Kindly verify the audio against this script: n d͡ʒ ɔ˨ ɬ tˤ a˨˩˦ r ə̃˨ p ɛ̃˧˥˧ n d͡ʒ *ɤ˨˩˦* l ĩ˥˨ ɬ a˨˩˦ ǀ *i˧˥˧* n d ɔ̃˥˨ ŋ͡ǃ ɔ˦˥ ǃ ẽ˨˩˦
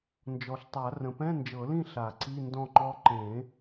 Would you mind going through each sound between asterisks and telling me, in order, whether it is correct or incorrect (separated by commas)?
correct, correct